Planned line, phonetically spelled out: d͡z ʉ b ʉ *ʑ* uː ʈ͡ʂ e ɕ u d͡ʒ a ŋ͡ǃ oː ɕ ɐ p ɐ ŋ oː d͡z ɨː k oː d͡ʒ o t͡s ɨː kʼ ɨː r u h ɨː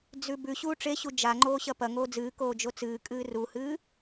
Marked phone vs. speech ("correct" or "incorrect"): incorrect